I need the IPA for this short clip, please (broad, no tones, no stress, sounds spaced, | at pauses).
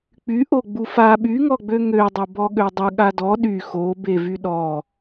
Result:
k͡p y ʔ o ɡ͡b u f a ɓ y ŋ ɔ ɡ͡b ø ŋ ø dˤ o b ɔ ɠ ø dˤ ə ɠ a d ɔ ɗ y x o b e v y ɗ ɔ